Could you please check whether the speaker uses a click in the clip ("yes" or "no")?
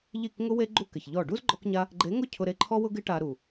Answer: yes